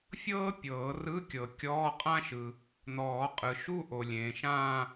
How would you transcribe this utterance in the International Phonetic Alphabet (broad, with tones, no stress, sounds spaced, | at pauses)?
fʲ ɤː˥ pʲ ɤː˨˩˦ r ɯ˧˥˧ kʲ ɤ˨ kʲ ɔː˧˥˧ qʼ ã˥ ʃ ɯ˨ | n̪ ɔː˨˩˦ qʼ ɯ˨ ʃ u˥˧ ʔ o˨ lʲ ẽː˨ ʃ ãː˥˧